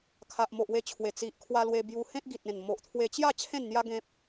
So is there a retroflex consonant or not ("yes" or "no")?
no